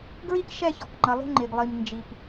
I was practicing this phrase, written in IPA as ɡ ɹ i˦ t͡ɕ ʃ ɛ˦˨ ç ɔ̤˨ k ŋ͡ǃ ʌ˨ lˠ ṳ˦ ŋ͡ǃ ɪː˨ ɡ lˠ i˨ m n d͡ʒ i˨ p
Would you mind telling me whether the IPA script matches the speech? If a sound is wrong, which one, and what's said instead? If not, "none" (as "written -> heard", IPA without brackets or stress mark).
t͡ɕ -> k